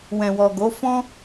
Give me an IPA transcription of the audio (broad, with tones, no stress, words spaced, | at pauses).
wɛ̃˨wɔ˨ɡo˨˦ fɔ̃˦